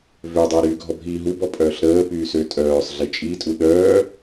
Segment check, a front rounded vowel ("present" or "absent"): present